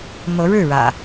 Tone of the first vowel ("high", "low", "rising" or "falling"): rising